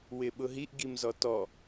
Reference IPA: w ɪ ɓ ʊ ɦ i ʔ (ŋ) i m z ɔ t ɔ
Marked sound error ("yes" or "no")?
yes